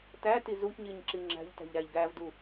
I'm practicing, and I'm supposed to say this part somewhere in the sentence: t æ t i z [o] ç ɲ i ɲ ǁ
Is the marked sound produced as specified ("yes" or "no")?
no